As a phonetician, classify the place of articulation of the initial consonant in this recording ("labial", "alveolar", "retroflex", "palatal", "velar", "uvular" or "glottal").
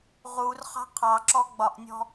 uvular